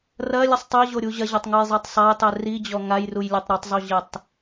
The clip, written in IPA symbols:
r ɐ lʲ ɘ sˤ tˤ ɘ ʑ o ɾʲ u ʑ ɐ ʑ a tˤ ŋ u j zˤ ɛ tˤ sˤ a j tˤ ɛ r i d͡ʑ ɔ ŋ a j r u j lʲ ɐ tˤ ɾ ɔ tˤ zˤ u ʑ ɘ tˤ

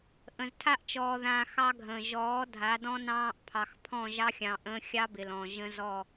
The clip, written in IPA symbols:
ʔ ə̃˨ z tʰ a˦ ʔ t͡ʃ ɔː˨ ð ãː˨ x ɑ˦ ɡʱ ə̃ː˨ ʒ ɔː˨˦ dʱ a˨˦ d ɔ̃˦ n ɑ̃ː˦ ʔ pʰ ɑ˨ x pʰ ɔ̃˦˨ ʒ ɑ˦ xʲ ɑ̃˨ ʔ ə̃ː˦ xʲ ɑ˦ b ɪ˨ l ɔ̃˨ ʒ ə̃˦ z ɔ˦˨

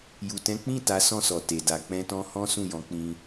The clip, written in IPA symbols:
j u˨ t ɛ̃˨˦ k͡p ĩ˦˨ t a˨˦ s ɔ̃˦˨ s ɔ˨ t e˨ d a˧ k͡p ɛ̃˦ t ɔ̃˦ h ɔ̃˦ s ũ˦˨ j ɔ̃˨˦ k͡p ĩ˧

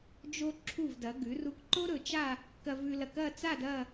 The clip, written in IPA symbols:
d͡ʒ o˧ ǁʰ u˧˩ v d ɐ˩˧ ɡ ʉ˩˧ r u˧ k ǃ o˥ ɾ ɵ˧ t͡ʃ a˥˧ | k ɐ˧ v ʉ˧ l ɐ˧˩ k ɐ˥˧ t͡s a˥˧ d ɐ˥˧

